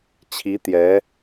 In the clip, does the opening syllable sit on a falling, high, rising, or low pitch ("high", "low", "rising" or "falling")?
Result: rising